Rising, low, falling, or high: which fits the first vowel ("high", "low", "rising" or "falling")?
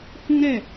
high